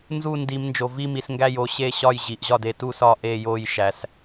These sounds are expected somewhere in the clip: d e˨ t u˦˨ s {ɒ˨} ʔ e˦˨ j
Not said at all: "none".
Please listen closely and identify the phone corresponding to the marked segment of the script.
ɒ˦˨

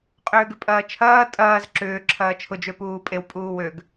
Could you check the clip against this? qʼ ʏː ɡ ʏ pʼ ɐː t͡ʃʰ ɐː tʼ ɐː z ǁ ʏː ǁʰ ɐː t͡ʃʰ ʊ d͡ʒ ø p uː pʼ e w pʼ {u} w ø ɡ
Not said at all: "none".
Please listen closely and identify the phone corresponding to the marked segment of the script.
uː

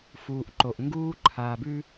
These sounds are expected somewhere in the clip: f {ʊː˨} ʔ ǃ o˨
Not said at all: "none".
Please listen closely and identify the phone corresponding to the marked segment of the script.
uː˨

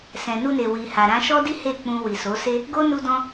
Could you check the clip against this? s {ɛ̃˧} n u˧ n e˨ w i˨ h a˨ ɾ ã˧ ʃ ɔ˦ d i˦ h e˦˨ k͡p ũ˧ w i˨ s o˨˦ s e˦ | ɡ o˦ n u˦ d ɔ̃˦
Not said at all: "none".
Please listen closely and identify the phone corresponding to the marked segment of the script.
ɛ̃˨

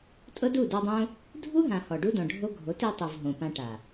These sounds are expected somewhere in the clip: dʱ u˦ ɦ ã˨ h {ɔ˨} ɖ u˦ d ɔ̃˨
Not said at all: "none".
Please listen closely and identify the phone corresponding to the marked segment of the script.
ɔ˨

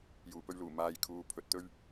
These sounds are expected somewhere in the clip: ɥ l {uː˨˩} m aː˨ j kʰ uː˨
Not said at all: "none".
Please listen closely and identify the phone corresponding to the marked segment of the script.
uː˨˩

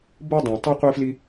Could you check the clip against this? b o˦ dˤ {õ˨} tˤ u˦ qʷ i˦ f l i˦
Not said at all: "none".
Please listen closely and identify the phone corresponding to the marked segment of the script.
õ˨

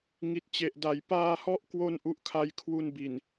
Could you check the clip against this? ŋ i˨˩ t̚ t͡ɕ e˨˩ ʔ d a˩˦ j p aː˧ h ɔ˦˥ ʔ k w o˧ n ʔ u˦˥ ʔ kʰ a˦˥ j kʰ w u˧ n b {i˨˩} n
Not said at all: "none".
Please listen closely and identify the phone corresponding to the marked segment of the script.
i˨˩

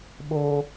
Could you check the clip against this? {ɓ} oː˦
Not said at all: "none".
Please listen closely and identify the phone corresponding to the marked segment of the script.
ɓ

